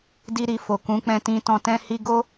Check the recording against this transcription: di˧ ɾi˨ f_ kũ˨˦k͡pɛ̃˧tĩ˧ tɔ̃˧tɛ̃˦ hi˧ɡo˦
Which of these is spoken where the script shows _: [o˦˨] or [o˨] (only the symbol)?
o˨